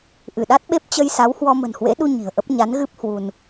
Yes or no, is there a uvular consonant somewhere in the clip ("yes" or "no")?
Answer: no